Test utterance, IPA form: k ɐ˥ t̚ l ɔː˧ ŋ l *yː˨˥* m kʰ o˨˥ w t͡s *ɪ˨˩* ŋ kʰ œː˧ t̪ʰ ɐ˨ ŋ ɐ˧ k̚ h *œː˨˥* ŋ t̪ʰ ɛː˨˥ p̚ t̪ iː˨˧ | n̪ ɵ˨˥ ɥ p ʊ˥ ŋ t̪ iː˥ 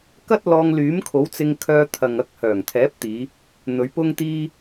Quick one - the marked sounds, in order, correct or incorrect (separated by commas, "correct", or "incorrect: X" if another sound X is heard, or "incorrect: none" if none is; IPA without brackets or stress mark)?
correct, incorrect: ɪ˧, incorrect: œː˨˩